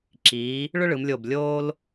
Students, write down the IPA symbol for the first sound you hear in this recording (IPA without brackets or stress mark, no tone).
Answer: ǁ